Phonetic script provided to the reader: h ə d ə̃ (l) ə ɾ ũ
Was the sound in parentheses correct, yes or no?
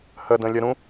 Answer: no